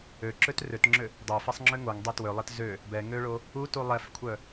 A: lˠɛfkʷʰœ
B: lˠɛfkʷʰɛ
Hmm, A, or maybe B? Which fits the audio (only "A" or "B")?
A